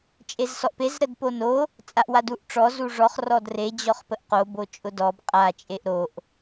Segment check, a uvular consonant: present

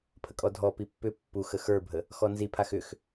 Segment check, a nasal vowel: absent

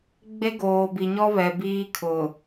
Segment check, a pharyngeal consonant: absent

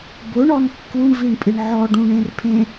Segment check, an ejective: present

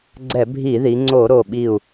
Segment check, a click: present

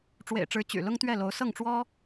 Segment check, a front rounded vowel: present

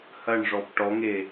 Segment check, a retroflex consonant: present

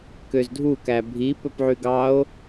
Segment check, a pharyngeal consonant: present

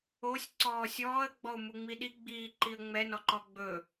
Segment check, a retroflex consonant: absent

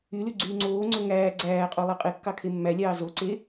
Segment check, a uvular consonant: present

